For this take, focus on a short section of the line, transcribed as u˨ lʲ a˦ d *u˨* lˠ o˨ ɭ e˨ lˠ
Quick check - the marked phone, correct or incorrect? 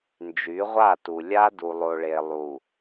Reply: correct